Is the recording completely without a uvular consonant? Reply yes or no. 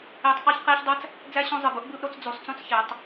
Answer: no